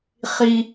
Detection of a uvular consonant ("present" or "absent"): present